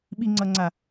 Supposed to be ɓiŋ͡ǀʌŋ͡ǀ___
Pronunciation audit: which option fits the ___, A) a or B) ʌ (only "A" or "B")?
A